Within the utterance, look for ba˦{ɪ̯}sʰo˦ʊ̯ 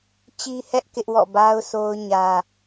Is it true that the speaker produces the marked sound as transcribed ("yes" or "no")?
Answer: no